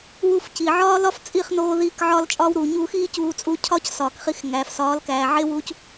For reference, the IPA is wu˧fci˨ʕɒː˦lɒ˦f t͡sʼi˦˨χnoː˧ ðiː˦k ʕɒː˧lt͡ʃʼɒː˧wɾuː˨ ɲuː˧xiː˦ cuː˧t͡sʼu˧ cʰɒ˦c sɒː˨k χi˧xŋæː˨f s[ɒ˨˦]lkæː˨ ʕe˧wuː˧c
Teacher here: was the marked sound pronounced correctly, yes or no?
no